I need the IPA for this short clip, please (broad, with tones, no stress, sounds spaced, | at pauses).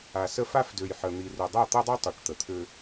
a˨ s ə˦ f a˦ f d ø˨ j ħ ə˨ n̪ i˨ r ø˨ dˤ a˦˨ t̪ ɤ˦ dˤ ø˦ tˤ ø˨ ʈ t̪ ə˨ t̪ʰ ø˦